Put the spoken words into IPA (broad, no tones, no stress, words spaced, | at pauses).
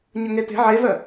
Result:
ɲɵŋete̤ ʕevœ